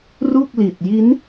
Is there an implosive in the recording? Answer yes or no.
no